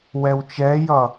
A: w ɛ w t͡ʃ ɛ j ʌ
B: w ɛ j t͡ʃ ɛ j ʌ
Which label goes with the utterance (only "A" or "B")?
A